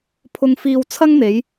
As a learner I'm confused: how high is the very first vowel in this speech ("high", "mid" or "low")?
high